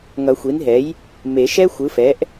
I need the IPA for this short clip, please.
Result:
ŋ ʌ˨˩˦ xʷ i˩˥ n ɦ ɛ˩˥ j | m e˨˩˦ ʃ ɛ˥ xʷ ɯ˩˥ f ɛ˩˥ ʔ

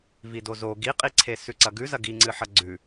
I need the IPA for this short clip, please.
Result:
v i d o z o ɡ i qʼ i ǀʰ e s ʉ ǀ ɐ ɡ ʉ z ɐ ɡ i ŋ͡ǀ ɨ ħ ɐ ɡ͡ǀ ʉ

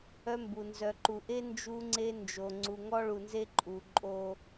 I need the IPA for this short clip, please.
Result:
œ˦ m b u˨ n z œ˨ ǃ u˨ ʔ e˦ n d͡ʒ u˦ ŋ͡ǀ e˦ n d͡ʒ o˨ ŋ͡ǀ u˨ ŋ ɔ˦ ɭ u˨ n z e˦ ǃʼ u˨ ǃʼ o˦

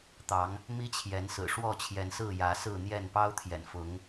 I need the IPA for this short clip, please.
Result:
t̪ ɑ˨˦ ŋ | m i˦ t͡ɕʰ j ɛ˨˦ n s ɹ̩˨˩ ʂ w ɔ˥˨ t͡ɕʰ j ɛ˨˦ n s ɹ̩˥˨ j ä˨˦ s ɹ̩˥˨ n̪ j ɛ˥˨ n p ɑ˦ ʊ̯ t̪ʰ j ɛ̰˨˩ n f ʊ˨˦ ŋ

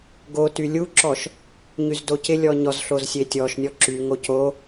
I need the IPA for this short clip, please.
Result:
ɡ o t y lʲ u ǁ ɔ ʃ | ɲ y z d o c ɪ lʲ ɔ ɲ ɔ z ɬ o z sʲ e tʲ ɔ ʃ nʲ ɔ ǁ y ŋ o c o

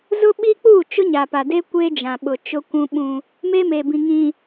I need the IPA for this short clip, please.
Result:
z ʊ˦ ɓ i˦ k͡p uː˦˨ t͡ʃ ʊ˦ ɲ a˨ p a˨ d e˦ kʷ e˦ d͡ʒ ã˨ ɓ ʊ˨ t͡ʃ ʊ˦ kʷ ũ˦ ɓ ũ˦ | m e˦ m e˨ b ĩ˨ ŋ ĩ˨

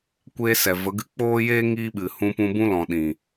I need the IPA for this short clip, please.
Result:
kʷ eː˦ s ɛ˨ v ə˨˦ ɡ ɨ˦ k͡p oː˦ j eː˦ ŋ iː˦ ɓ ɨ˨ h ũ˧ p ũ˧ b ũ˦ l ɔ̃˨ ɗ ĩ˨

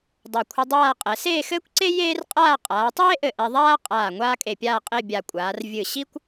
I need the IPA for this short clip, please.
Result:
dˤ a˧˩ kʷʰ ɨ˧ dˤ aː˥˧ qʼ ɛ˩˧ s eː˥˧ x ɘː˥ kʷ ǀ e˥ j eː˥ r qʼ aː˥˧ qʼ aː˩˧ tˤ eː˥ ʔ ɘ˧˩ ʔ ɛ˧ ðˤ aː˥ qʼ aː˧˩ ŋʷ aː˥ kʼ e˧˩ pʲ aː˥˧ qʼ e˥˧ bʲ a˧˩ kʷʼ aː˩˧ r vʲ ɨ˧˩ ɕ i˥ kʷ

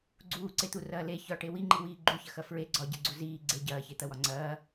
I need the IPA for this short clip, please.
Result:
ɡ͡ǀ uː ǀ e t̪ u r ɐː l e ç ɒ ʈ e w i ŋ͡ǃ i w iː ɡ͡ǃ u ç ɐ x ɐ f ɹ e ɡ͡ǀ ɒ ɟ e ɡ͡ǀ u z iː ɡ͡ǀ e ɟ ɐː ç e t̪ ɐ w ɒ ŋ͡ǀ ɐː

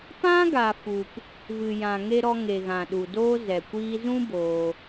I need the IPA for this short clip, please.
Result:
p ã˦ ɡ a˨ f u˨ p | v ɨ˨ j ã˨ ŋ e˧ ɾ ɔ˧ ŋ e˨ ɣ ã˨ ɗ u˨ d oː˦ z ɛ˨ kʷ iː˦ z ũ˦ b oː˦

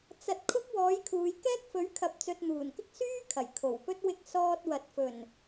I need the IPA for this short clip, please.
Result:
t͡s ɐ˧ t̚ kʰ ʊ˥ k̚ w ɔː˨˥ j kʰ uː˨˧ j k ɛː˥ k̚ f ɵ˨˥ ɥ kʰ ɐ˨ p̚ t͡s ɵ˨ t̚ n̪ uː˨˩ n k ɪ˥ k̚ s yː˥ kʰ ɐ˨˩ j kʰ o˨˩ w p ɵ˥ t̚ w ɪ˧ k̚ s ɔː˧ t̚ w ɐ˨ t̚ f ɵ˨˩ n

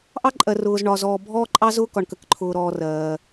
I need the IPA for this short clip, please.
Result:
ʔ ɑ˦ ǃʼ ɜ˨ r ʊː˨ z ɳ ɒ˨ z ɔː˨ bʱ ɔː˦ ǃʼ ɑ˦ z ʊː˦ k ɒ˨ ɳ k ə˨ k ǃʰ ʊː˨ ɾ ɔː˨ r ɜː˨

